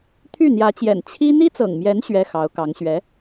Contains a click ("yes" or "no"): no